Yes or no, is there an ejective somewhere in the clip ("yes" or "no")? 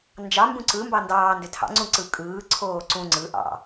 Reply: yes